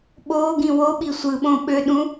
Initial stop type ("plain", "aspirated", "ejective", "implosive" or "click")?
implosive